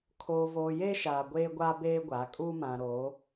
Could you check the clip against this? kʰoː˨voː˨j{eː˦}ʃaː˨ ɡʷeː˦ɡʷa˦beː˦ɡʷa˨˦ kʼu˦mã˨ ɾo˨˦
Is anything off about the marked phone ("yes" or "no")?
no